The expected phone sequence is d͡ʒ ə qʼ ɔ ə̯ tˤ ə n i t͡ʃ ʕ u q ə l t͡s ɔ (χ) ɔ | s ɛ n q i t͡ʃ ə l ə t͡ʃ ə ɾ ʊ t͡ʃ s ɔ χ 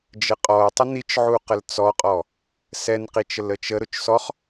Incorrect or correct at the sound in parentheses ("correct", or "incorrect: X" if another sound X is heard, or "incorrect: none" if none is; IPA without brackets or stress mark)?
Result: incorrect: qʼ